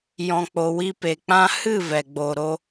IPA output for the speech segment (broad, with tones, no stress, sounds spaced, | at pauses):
j ɔ̃˧ k͡p o˧ w i˦ p e˧ k͡p ã˦ h ɨ˦˨ v ɛ˨ ɡ͡b o˨ ɾ o˧